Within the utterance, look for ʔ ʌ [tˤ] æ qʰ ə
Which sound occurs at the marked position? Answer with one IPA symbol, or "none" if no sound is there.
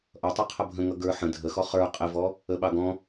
tˤ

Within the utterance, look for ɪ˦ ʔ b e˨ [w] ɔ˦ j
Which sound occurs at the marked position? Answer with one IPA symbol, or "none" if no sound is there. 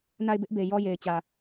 j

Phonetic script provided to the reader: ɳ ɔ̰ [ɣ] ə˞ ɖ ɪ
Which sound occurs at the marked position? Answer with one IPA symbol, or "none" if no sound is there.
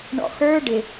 x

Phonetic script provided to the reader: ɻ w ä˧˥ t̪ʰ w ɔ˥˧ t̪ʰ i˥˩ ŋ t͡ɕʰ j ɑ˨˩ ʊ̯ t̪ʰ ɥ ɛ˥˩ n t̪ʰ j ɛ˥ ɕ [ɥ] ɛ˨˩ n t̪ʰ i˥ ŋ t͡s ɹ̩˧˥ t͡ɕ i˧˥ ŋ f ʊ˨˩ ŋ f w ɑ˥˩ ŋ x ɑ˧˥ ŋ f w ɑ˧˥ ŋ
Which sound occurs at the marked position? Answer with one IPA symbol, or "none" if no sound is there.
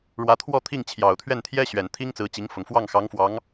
ɥ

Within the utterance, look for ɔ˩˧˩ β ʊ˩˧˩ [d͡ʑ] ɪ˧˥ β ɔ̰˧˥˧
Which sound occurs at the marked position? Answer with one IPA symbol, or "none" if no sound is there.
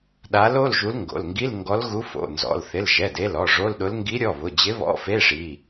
d͡ʑ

